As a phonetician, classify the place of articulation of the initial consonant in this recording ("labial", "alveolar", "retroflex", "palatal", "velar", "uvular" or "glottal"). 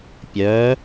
labial